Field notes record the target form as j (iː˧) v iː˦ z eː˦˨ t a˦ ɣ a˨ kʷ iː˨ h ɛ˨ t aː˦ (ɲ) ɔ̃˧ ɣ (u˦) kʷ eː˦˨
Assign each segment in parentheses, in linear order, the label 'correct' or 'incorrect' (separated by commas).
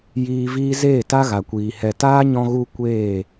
correct, correct, correct